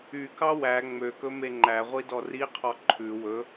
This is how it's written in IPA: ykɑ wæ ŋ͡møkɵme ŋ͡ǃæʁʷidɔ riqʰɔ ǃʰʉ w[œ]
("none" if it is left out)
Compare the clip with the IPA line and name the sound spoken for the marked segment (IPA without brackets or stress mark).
ɵ